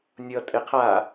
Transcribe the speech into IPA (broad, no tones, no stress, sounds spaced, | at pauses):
nʲ ʌ tʼ e qʰ a